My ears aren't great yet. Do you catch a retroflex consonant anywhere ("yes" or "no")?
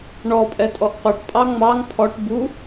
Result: yes